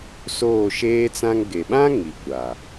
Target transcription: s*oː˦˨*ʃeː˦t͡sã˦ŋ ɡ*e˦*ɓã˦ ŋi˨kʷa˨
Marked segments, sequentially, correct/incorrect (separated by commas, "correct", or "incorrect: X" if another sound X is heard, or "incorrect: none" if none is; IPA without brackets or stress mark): correct, incorrect: e˨